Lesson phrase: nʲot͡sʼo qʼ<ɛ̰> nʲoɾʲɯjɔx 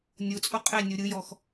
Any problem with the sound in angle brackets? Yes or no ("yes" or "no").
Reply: yes